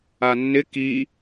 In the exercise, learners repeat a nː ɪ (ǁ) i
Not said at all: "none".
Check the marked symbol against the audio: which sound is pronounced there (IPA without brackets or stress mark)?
k